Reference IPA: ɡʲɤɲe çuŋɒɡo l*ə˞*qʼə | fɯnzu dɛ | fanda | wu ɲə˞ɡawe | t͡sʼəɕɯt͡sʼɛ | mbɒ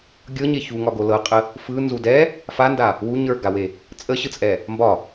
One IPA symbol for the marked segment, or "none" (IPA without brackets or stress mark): ɤ